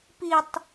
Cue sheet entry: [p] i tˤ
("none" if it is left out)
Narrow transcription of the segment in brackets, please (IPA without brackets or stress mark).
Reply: p